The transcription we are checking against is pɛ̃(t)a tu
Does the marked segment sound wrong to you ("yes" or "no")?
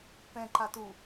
yes